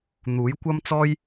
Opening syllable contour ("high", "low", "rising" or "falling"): rising